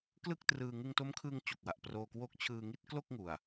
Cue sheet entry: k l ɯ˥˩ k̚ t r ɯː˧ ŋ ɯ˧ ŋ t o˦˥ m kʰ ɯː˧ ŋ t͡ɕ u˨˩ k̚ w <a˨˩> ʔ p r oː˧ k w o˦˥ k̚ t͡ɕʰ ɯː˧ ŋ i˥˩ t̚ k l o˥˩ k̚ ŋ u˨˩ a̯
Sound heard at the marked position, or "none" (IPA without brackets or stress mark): a˨˩